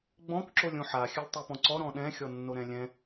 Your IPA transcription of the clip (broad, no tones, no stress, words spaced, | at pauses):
ɡ͡bɔ̃k ǁolʲõħa xʲɘlʲtˤipɔ̃ǀɔ ɾɔ̃ɗɛ̃ xʲɔnːoɾɛ̃lʲɛ̃